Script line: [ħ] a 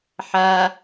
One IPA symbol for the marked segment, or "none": ħ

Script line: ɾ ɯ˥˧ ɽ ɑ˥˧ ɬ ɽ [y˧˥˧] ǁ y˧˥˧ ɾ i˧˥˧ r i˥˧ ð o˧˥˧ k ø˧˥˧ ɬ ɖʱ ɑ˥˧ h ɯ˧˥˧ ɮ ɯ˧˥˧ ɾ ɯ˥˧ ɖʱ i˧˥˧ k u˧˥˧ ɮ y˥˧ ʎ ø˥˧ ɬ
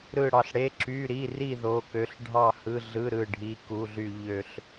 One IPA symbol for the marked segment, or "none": e˧˥˧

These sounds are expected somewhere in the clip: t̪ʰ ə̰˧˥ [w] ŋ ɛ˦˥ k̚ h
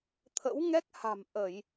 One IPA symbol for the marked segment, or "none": w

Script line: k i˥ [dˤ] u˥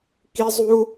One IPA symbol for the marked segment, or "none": zˤ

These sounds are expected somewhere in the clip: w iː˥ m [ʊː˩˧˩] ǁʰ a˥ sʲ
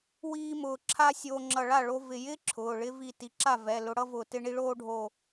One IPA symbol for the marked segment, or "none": ʊː˧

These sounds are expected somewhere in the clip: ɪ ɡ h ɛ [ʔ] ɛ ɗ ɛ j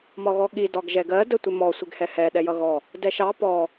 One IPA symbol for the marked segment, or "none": h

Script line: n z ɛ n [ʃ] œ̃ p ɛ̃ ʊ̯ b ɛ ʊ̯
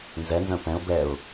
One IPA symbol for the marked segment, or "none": z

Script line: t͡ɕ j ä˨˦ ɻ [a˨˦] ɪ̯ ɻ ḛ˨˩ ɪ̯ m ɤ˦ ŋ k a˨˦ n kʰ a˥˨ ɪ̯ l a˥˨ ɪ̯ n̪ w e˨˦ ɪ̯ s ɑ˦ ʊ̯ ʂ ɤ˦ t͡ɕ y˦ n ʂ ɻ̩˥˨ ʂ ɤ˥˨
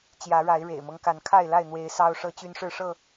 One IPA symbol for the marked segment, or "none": a˨˦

